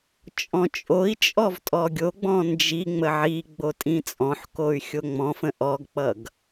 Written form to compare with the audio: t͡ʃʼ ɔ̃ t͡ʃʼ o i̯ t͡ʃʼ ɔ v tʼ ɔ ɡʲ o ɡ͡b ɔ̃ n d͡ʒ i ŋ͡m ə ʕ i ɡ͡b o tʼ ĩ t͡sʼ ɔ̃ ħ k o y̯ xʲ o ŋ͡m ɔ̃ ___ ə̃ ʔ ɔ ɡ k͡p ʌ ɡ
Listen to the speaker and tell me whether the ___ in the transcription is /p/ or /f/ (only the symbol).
f